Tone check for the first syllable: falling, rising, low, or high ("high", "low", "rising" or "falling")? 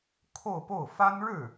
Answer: falling